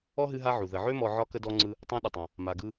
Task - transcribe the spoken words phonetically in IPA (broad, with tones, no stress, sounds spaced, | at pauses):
ɔ˥ ɦ ɨ˦ ɦ a˦ ʕ u˩ ð ə˨ ʕ ø˥ m ɔ˦ ʕ ɒ˥ k ə˥ d ɔ˦ ŋ͡ǀ ɯ˦ | tˤ ã˦ ɗ ə˨ tˤ ã˨ | m a˨ ɡ ɯ˦